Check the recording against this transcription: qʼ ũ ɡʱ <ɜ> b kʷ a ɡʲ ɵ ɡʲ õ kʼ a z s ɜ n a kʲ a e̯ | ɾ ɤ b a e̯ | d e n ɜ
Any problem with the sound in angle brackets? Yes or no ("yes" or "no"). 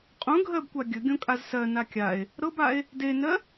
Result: no